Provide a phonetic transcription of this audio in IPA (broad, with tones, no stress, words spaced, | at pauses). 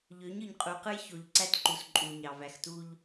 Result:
ʎø˨˦ɲɯ˨ɲqʼu˨qɯ˦j ço˨ʎǀæ˦tǃu˨s ǃʼu˨ɲɑ˨ væ˨xtu˦ʎ